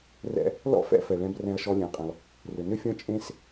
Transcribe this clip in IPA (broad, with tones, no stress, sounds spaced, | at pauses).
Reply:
r ɛ̰˥ | l ɔ̰˥ f ɛ̰˥ f ɛ˩ ɭ ɛ̃˨ b r ɛ̃˨ ɐ̯ ʃ ɔ˨ lʲ ɛ̃˩ ɐ̯ qʼ ẽ˩ lˠ | r ʏ˩ n ʏ˥ fʲ ɔ̃˥ t͡ʃʼ ẽ˥ s